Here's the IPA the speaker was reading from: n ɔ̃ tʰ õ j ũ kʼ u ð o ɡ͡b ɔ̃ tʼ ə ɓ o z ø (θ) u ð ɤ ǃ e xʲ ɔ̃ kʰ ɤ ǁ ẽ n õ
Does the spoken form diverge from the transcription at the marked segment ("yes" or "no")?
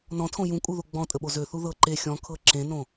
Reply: no